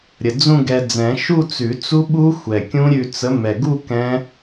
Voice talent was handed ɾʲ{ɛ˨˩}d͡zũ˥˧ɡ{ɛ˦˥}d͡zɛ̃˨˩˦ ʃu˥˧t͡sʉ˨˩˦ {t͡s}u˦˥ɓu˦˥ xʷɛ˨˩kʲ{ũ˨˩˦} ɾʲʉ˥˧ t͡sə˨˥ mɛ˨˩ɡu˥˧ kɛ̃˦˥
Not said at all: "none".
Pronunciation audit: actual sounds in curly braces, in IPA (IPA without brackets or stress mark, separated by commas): ə˨˩, ɛ˧, t͡s, ũ˦˥